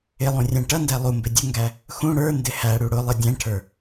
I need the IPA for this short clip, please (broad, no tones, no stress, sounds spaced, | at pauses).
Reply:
ɪ lˠ ũ rʲ æ̃ ʈ ʌ n d æ lˠ u m b ɪ dʲ ʊ ŋ ɡ æ | x ũ ɽ ə˞ n d ɪ h æ ɽ u ɽ ʊ lˠ ɪ dʲ æ̃ ʈʰ ə˞